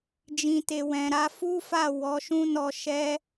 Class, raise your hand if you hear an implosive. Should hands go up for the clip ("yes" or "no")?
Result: no